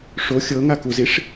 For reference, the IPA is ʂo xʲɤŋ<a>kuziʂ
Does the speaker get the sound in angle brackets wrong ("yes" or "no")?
no